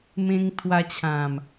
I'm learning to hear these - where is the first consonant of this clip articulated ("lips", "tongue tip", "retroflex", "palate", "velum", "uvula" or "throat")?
lips